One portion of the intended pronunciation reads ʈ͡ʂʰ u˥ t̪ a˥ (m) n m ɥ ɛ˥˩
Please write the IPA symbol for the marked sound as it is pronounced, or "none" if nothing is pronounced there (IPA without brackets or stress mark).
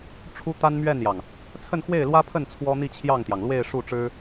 none